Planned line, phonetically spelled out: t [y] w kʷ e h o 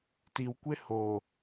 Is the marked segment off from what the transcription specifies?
yes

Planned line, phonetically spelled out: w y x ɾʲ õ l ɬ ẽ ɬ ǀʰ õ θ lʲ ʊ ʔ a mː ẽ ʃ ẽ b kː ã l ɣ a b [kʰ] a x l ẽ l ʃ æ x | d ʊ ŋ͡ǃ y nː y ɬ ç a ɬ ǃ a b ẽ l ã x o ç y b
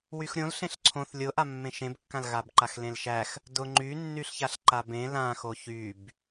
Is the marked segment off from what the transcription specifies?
yes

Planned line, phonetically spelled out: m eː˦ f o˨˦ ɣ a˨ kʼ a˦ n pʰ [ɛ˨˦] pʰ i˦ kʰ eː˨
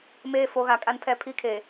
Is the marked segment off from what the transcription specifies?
yes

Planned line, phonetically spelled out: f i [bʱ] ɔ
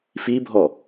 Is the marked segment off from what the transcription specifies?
no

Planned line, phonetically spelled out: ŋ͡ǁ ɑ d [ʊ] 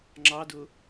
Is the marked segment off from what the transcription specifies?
no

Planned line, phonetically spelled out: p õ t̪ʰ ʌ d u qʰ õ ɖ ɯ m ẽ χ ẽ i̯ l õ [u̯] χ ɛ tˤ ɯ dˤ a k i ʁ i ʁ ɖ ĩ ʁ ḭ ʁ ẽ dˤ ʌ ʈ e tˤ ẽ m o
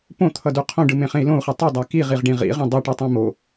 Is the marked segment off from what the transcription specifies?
no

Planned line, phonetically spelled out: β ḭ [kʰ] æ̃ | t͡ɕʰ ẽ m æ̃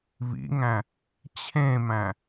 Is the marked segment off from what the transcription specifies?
yes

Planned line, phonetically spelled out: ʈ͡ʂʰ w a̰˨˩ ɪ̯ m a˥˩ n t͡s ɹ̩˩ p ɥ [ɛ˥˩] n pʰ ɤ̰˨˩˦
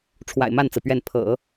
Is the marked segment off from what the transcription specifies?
no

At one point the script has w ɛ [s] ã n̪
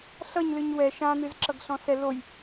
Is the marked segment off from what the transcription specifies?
yes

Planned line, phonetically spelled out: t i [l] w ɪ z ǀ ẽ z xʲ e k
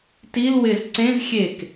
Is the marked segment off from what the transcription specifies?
no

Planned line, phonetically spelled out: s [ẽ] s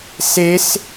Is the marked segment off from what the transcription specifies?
yes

